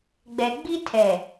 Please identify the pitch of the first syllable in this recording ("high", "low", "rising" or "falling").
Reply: low